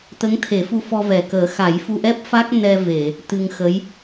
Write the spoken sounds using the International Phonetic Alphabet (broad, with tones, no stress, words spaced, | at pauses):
t̪ə˧˥ŋt̪ʰe˨˩˦fu˧ fɔ˧vɛ˨˩kəː˨˩˦ xa˨˩˦jfu˧ʔɛ˦˥p̚ fa˦˥k̚ nɛ˧ve˨˩˨ | t̪ɨ˧ŋxə˧˥j